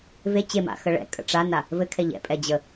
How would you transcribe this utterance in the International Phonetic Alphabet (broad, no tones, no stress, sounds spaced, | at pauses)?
v e t͡ɕ e m a̰ x ə ɭ ɛ̰ kʼ ə̰ ʈ͡ʂ a n a | v ɘ kʰ ɛ ʎ ɛ̰ pʼ ɛ d͡ʑ ə